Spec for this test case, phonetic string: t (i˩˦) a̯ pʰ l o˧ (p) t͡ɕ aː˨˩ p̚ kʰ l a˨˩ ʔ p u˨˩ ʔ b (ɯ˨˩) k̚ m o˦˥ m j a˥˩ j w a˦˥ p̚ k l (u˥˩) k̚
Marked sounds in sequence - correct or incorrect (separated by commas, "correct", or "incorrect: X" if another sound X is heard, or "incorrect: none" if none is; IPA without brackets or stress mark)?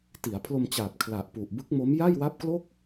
correct, incorrect: m, incorrect: ɯ˦˥, incorrect: o˥˩